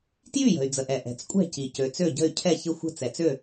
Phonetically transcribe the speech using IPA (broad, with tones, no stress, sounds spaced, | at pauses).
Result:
t j y˥˩ j ə̤˩ y̯ d͡z ə˩ ʔ ɛ˩ ʔ ɛ̤˩ t͡s kʷʼ ɛ̤˥˩ c i˩ c ø˩ t͡s ø˥˩ ɟ ə̤˥˩ y̯ cʰ ɛ˥˩ ç ɪ˥˩ xʷ ə̤˥˩ t͡s ɛ˩ t͡s ø˥˩